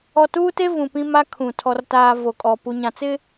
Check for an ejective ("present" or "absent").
present